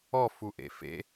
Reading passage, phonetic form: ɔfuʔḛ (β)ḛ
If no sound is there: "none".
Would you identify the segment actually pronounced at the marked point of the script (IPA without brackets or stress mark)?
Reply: f